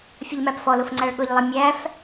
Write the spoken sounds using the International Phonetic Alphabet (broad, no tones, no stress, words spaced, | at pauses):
fʲəʎmæpfɔlʊf ŋ͡ǀæɭɠʊʎlˠɪ mʲæf